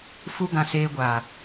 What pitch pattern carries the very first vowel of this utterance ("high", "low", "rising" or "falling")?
high